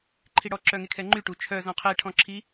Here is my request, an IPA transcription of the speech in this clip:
ǃʰ i ɽ ɔ ǁ œ ŋ e kʰ ɛ ŋ͡ǃ y ʈ u t͡ʃʰ œ z ɔ̃ qʰ e ʈʰ ɔ̃ ǁʰ i

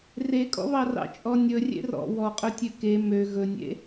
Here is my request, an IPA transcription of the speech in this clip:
r e kʼ ɔ̰ β ɑ r ɑ̰ t͡ʃʼ ɔ nʲ ɵ rʲ ḛ r ɔ̰ w ɔ qʼ ɵ tʲ ø k e m ø ɣ ɵ nʲ ḛ

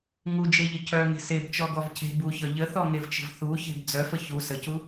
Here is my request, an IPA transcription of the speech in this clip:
ŋ u d͡ʒ e ʎ ə cʰ œ ŋ e̤ s e b t͡ʃ ɔ ɡ ɔ v cʰ e̤ b u ç ɒ ʎ ə θ ɔ ŋ e v t͡ʃ ə̤ v θ u ç e̤ b d͡z œ f ə ç u s ə c u

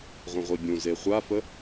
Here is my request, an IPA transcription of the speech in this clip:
ʁʷ ə̃ ʁʷ i bʲ ũ z e χʷ a f ə

